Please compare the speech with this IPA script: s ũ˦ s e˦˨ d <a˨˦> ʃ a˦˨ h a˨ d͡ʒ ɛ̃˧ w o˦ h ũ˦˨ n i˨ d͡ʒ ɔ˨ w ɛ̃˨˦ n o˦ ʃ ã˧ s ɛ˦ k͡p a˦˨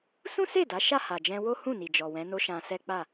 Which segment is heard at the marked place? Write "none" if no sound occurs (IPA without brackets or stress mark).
a˨˦